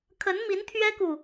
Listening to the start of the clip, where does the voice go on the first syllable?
rising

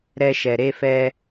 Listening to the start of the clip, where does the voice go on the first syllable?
high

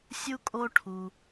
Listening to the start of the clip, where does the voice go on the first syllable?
high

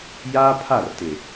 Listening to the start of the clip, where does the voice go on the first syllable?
high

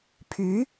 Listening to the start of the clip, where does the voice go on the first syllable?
rising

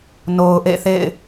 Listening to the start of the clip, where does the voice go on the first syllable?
low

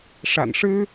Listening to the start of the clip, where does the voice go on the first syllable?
low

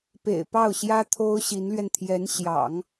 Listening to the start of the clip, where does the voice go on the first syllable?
low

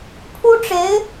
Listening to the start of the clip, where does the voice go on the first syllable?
high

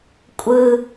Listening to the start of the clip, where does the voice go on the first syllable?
low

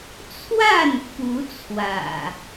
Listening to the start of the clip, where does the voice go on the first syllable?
falling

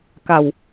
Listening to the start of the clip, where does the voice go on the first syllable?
low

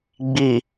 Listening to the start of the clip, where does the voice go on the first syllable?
low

